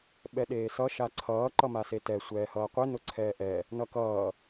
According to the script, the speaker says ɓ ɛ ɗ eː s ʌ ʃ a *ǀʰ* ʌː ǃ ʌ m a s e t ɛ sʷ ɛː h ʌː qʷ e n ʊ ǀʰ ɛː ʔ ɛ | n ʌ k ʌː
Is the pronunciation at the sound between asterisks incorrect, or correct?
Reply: correct